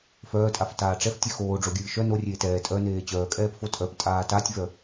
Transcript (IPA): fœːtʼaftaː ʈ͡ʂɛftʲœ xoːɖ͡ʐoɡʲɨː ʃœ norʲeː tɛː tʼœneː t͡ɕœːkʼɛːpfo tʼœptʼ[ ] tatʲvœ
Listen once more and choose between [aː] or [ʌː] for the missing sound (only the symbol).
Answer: aː